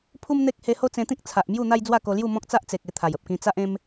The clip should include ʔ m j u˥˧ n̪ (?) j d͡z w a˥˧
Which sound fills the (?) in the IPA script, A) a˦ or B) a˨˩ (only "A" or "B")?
A